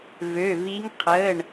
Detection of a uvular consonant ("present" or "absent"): present